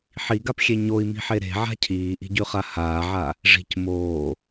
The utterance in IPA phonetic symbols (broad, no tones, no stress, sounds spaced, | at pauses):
ħ i ɡ a p xʲ e ɲ o i̯ m i̤ ħ e ɾ e̤ ʕ a̤ cʰ iː ʔ i̤ ɟ ʉ χ a h aː ʕ a | ʐ i̤ c m oː